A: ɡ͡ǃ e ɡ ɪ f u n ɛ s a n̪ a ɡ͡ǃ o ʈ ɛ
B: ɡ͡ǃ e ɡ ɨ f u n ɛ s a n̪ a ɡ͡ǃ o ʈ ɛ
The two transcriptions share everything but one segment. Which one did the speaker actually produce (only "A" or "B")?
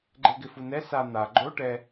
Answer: A